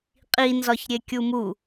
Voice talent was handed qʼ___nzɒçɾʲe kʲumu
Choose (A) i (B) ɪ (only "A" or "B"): A